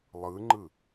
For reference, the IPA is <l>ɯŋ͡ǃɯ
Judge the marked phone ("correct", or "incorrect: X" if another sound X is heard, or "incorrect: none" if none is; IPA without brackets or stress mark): incorrect: lˠ